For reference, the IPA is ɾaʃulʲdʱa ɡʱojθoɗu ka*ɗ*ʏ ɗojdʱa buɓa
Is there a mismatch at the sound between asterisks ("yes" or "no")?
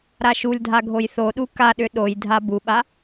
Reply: no